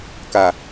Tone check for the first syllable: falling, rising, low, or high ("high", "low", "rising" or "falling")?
low